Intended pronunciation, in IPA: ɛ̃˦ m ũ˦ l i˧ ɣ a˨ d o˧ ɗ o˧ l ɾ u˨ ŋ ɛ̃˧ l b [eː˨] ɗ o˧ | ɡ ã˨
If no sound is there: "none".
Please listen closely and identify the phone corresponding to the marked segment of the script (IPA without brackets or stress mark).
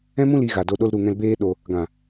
eː˦